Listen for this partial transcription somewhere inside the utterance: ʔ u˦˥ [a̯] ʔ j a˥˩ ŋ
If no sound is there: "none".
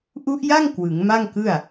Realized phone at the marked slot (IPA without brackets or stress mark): none